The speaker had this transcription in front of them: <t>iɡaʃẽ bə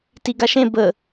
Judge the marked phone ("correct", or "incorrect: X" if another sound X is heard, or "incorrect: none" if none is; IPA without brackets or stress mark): correct